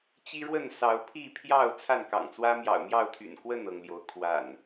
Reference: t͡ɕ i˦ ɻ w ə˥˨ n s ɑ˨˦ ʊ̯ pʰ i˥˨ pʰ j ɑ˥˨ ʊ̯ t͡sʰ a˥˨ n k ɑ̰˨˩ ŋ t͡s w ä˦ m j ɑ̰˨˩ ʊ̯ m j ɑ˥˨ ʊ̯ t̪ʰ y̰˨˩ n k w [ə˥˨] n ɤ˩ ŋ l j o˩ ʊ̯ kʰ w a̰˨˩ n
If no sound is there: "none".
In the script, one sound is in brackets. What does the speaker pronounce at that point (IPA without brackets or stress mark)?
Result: ə˥˨